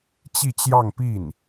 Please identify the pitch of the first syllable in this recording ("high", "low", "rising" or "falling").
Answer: falling